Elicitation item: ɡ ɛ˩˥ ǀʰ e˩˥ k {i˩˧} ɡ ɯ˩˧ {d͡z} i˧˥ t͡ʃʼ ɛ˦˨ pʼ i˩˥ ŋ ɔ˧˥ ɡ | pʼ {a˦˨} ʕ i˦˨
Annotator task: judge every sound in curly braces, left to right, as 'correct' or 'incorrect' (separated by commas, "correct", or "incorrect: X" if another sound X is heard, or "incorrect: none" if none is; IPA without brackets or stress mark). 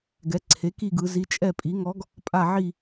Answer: incorrect: i˦˨, incorrect: z, correct